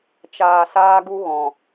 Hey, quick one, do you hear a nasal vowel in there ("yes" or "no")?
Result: yes